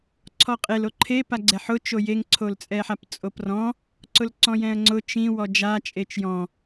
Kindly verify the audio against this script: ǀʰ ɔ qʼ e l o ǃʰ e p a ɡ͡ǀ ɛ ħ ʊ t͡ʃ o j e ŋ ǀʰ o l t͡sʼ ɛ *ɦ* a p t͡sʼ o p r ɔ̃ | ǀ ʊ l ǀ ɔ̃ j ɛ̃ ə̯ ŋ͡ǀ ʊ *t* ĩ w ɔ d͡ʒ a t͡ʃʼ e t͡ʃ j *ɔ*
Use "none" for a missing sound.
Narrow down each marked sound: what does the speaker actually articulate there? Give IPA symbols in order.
ħ, t͡ʃ, ɔ̃

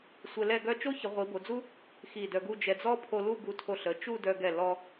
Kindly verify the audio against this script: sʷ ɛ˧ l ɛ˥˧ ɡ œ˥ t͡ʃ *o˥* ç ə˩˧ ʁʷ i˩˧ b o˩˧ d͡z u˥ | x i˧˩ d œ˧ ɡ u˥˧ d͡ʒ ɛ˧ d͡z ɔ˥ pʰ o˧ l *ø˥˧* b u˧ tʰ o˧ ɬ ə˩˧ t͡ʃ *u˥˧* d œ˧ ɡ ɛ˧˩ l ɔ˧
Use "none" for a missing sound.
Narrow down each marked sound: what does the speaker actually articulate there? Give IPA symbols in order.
o˥, u˥˧, u˥˧

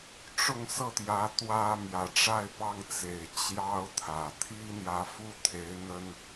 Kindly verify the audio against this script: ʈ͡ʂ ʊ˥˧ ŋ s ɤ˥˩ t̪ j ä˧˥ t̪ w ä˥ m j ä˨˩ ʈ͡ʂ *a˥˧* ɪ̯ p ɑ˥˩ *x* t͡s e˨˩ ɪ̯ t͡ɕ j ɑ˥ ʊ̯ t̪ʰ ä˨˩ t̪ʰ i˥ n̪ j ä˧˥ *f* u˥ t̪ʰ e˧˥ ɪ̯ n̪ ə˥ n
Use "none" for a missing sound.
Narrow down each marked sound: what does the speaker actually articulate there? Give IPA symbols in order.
a˥˧, ŋ, f

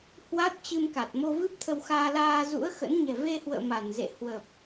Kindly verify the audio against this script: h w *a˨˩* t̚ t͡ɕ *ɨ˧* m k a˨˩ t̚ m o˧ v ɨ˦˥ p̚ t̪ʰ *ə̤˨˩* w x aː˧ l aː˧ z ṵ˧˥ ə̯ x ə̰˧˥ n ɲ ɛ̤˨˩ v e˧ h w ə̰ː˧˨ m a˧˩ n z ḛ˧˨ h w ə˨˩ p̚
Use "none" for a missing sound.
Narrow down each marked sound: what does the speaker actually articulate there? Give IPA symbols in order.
a˦˥, ɨ˧, ə˧

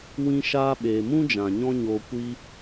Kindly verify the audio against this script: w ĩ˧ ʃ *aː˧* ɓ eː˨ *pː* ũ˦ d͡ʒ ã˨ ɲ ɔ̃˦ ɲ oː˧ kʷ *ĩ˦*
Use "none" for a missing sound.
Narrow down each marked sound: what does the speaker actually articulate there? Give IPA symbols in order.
aː˧, m, i˦

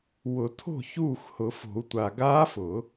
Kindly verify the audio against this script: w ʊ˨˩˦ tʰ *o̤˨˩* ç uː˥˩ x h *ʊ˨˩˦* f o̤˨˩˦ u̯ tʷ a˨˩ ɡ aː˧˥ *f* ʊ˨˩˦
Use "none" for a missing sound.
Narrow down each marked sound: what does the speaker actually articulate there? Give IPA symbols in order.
o̤˥˩, ʊ˨˩˦, f

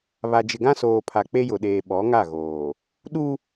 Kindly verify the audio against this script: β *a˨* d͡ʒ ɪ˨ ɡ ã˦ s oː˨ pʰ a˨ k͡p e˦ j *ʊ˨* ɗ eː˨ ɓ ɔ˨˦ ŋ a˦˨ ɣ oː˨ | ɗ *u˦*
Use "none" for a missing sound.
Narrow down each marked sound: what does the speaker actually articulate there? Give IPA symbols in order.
a˨, ʊ˨, u˦

